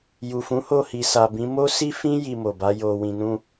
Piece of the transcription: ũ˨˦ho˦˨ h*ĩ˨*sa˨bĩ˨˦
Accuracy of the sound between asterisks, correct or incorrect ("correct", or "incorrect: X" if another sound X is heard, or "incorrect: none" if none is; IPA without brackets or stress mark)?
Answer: incorrect: i˨